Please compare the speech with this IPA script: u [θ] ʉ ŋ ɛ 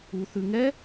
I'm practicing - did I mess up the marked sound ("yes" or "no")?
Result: no